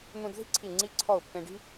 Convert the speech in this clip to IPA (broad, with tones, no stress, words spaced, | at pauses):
n̪ũ˧d ði̤˥ǀʰi˧˩ ŋ͡ǀi˧ǀʰɔ˧˩ʊ̯ pːẽ˧ɖi̤˥